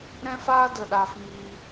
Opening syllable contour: high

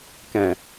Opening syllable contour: low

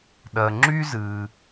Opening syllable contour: low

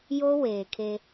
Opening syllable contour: high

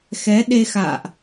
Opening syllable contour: rising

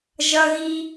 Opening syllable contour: high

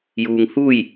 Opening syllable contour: low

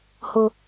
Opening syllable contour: high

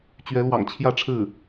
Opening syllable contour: rising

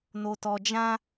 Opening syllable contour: low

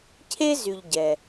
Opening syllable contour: high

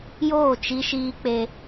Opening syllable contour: falling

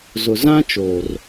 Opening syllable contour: low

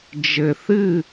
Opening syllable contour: low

